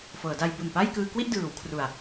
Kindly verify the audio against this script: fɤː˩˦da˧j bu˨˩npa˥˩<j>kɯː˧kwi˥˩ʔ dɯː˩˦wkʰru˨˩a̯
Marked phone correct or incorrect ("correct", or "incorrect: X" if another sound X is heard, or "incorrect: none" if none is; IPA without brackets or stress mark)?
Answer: correct